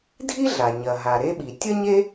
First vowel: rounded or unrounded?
unrounded